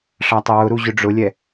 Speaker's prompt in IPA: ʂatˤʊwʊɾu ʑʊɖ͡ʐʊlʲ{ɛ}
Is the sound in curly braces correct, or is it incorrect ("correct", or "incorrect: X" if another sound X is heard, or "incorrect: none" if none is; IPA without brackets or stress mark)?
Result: correct